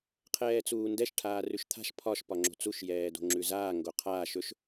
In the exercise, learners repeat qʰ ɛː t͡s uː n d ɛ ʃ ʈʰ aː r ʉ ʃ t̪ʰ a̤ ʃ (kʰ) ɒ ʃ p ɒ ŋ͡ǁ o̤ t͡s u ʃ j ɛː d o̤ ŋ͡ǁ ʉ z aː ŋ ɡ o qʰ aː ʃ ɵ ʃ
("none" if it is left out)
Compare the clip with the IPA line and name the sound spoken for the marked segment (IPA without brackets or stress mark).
pʰ